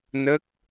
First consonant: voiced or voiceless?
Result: voiced